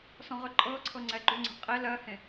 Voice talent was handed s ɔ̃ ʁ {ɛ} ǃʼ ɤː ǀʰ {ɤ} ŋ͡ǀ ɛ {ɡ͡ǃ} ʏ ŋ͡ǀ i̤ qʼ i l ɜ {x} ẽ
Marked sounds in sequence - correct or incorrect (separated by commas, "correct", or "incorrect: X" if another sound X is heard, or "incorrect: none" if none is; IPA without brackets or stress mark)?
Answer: incorrect: ʏ, correct, correct, incorrect: h